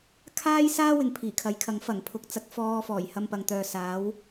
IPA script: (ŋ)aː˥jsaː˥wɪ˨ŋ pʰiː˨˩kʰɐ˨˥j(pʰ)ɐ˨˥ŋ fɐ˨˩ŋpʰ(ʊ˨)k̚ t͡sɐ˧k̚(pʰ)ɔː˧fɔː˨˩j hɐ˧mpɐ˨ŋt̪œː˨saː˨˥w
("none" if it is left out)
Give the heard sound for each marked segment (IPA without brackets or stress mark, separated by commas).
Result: kʰ, kʰ, ʊ˨, f